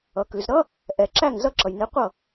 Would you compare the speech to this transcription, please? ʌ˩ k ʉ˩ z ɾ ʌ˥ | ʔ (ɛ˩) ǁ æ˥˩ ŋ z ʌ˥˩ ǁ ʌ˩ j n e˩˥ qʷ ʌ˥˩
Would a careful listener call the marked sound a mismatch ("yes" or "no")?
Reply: no